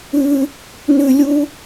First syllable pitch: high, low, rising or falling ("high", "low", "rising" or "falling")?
high